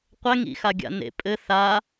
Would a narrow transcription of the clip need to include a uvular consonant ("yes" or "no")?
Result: yes